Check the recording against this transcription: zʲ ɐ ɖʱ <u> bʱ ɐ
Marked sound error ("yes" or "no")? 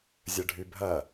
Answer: yes